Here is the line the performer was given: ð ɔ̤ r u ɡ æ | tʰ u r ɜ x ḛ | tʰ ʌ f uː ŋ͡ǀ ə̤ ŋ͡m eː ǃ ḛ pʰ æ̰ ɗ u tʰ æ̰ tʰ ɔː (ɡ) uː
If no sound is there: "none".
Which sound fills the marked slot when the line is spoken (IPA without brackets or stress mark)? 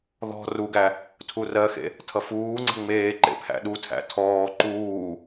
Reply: ǃ